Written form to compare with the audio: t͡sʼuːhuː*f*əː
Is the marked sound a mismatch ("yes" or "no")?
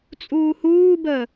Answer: yes